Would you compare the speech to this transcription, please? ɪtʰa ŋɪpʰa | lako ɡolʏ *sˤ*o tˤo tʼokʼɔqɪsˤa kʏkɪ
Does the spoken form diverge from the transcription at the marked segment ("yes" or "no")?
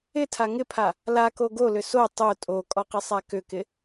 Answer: yes